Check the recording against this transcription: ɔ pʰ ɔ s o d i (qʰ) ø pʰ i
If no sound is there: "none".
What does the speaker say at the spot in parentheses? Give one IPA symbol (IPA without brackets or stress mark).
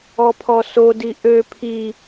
ʔ